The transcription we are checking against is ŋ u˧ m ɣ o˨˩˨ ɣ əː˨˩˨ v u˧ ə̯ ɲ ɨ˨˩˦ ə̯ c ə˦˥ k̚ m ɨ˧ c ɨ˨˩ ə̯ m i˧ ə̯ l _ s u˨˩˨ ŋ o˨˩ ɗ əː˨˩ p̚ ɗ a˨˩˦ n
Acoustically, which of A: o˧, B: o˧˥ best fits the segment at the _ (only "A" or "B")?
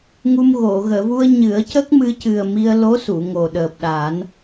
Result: B